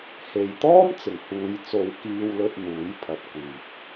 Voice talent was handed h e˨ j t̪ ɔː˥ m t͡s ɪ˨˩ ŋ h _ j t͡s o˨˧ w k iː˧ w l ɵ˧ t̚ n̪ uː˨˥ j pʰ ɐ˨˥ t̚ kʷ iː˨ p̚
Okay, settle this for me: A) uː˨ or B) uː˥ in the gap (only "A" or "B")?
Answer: A